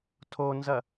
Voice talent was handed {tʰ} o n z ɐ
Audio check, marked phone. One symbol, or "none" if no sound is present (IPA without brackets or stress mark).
tʰ